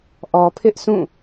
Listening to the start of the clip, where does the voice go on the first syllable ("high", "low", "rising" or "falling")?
low